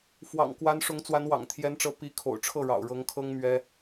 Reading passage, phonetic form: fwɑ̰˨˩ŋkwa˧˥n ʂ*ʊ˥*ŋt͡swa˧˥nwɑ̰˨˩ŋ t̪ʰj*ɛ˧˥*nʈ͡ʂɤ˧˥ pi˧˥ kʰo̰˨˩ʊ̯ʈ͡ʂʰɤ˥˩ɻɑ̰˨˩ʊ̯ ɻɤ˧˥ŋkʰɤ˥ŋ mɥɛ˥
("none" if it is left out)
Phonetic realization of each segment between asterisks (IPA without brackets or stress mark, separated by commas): ʊ˧˥, ɛ˧˥